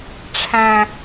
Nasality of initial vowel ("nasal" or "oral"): nasal